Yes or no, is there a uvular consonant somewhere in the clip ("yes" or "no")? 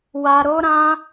no